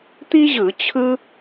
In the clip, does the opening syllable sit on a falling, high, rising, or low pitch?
high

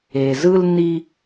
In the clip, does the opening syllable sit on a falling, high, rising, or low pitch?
low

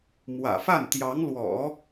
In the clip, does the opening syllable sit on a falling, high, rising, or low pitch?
low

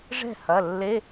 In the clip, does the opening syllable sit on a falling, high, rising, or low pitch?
falling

